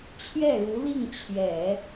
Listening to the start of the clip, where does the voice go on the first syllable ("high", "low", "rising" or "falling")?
falling